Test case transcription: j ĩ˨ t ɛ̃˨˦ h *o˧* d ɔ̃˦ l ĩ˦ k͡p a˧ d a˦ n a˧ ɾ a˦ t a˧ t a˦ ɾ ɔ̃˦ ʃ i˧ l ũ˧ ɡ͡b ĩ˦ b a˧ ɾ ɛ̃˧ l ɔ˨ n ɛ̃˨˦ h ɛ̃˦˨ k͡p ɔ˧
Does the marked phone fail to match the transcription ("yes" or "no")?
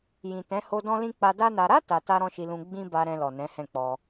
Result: no